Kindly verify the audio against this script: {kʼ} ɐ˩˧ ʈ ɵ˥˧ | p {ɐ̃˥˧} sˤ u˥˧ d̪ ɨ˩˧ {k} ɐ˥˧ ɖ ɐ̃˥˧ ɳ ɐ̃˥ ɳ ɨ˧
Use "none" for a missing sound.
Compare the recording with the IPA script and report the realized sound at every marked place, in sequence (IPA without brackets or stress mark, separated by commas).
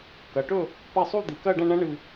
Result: k, ɐ˥˧, k